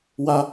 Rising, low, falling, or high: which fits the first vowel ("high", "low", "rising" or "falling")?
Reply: high